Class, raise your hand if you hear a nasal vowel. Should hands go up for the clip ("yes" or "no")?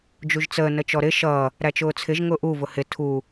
no